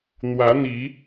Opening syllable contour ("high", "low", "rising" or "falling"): rising